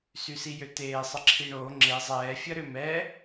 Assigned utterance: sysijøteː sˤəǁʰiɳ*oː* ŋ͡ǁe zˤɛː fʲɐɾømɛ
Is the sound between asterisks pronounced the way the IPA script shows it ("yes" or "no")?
yes